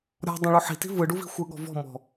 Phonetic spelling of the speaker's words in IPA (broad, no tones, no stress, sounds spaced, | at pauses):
ɾʲ ɔ̤ dˤ õ ɭ u ħ i̤ t i̤ v ɯ ɖ u v i̤ xʷ ɯ ɠ ɔ̤ v ɔ̤ m ɔ̤